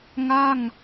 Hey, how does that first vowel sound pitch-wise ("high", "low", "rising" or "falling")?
falling